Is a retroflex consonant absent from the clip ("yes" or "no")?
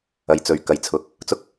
yes